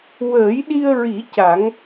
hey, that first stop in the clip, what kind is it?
implosive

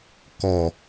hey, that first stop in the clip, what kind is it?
plain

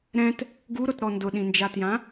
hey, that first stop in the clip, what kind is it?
plain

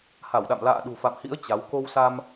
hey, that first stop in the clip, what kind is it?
implosive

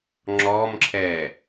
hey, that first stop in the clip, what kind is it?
click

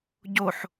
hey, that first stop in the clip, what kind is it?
plain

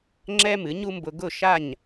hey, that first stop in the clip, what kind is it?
click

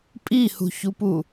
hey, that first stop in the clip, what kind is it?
ejective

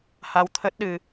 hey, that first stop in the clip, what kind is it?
aspirated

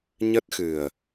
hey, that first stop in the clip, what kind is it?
plain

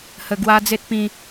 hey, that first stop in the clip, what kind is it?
plain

